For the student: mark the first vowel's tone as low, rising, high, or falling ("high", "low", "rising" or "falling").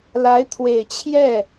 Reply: rising